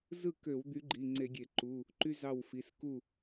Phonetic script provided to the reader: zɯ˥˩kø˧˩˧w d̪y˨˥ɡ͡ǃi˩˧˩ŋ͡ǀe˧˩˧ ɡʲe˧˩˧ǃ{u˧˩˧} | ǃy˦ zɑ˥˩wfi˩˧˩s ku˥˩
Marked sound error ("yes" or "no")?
yes